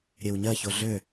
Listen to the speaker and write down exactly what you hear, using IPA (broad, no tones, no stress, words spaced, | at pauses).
ɾʲewɲɜço ɮø